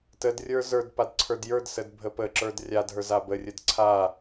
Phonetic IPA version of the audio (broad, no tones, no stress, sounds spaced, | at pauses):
t ə d rʲ ə˞ z ə˞ d p a d ǀʰ ə˞ d j ə˞ d s ə d bʱ ə p ə ǁ ə˞ d rʲ a d ɦ ə˞ z a b ə rʲ ə d ǀʰ a